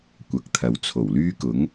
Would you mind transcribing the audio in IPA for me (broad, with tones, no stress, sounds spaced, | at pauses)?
kʷ ɐ˨˥ k̚ t̪ʰ ɐ˨ w t͡sʰ o˨˩ w l yː˥ k ʊ˨˥ ŋ